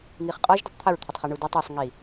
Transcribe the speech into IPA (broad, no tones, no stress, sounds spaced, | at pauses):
ŋ i χ qʼ ɔ ʒ d i tˤ t̪ʰ ə ɹ t̪ʰ ɘ tˤ χ i ɳ u d u tˤ i sˤ ŋ i